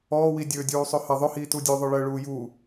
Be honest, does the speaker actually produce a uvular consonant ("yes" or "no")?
no